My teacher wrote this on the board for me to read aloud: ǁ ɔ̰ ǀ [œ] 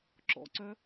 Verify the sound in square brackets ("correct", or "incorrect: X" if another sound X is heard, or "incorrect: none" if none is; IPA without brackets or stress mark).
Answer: correct